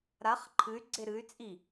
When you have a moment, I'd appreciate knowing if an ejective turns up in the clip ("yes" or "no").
yes